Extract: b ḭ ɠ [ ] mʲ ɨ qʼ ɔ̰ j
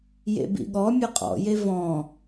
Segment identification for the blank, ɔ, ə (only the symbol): ɔ